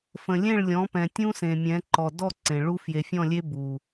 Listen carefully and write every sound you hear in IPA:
f ə̃˨ lʲ ẽ˦˨ ɭ lʲ ɔ̃˨˦ p ɛ̃˨ tʲ ũ˦ s ẽ˨ mʲ ɛ̃˨˦ ǃ ɔ˨ d ɔ˦˨ ǀ ẽ˨ ɭ u˦ f j e˨ fʲ ɔ̃˦˨ lʲ e˦ b u˨

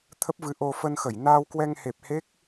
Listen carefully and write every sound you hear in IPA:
t̪ʰ ə˦˥ p̚ v ɨ˨˦ ʔ o˧ f ə˧ n x ə˧˩ j n aː˧ w k w ɛ˧ ŋ h e˨˩ p̚ h e˦˥ k̚

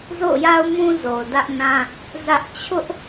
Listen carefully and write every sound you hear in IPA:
z o̰˦˨ ʊ̯ j a˦ ʊ̯ m ũ˦ z o˨ ʊ̯ d ä˦ ʔ n ã˦ | z ä˦ ʔ t͡ɕʰ ʊ˦ ʔ

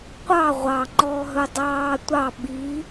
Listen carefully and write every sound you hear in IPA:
qʷ ɑ ʁʷ ɑ ŋ͡ǃ ɔː ɦ ɵ dˤ ɑː tʷ ɑ ɓ i

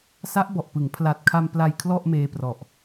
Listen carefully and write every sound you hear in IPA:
s a˦˥ ʔ b ɔ˨˩ ʔ p ɯ˩˦ ŋ pʰ l a˨˩ t̚ kʰ a˧ m p l a˧ j kʰ l ɔ˥˩ ʔ m eː˧ p r ɔ˨˩ ʔ

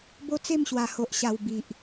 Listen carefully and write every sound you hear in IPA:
b o˦ t͡s e˥˧ m ɕ w a˨˩ h o˨ ʔ ɕ a˨˩ w b i˨ ʔ

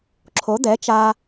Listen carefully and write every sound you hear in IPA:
ǁʰ o˩˥ d̪ ɛ˩˥ t͡ʃ aː˧

